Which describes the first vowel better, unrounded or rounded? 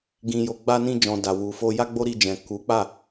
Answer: unrounded